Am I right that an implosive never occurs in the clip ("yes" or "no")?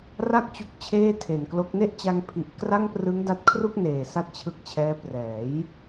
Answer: yes